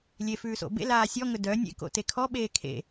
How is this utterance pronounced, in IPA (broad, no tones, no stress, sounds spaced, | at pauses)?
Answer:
lʲ e f ʉː s o̰ b ḛ l aː sʲ ɔ ŋ ɵ d œ nʲ ḛ k o̰ t e kʰ ɔ ɓ eː kʰ ḛ